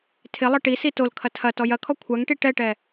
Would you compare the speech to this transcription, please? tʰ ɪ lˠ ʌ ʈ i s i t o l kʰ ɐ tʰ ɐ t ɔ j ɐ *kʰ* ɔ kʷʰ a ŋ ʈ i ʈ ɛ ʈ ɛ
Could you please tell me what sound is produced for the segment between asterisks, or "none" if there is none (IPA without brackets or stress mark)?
kʰ